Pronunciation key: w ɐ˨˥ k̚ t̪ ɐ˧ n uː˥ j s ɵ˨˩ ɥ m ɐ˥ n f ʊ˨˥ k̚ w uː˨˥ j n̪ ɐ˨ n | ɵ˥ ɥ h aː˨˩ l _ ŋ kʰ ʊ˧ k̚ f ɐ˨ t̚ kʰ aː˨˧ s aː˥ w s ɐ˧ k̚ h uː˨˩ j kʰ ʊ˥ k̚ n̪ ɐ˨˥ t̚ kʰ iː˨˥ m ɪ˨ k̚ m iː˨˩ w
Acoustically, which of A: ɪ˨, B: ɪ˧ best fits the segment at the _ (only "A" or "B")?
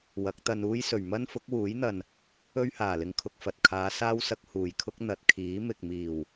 B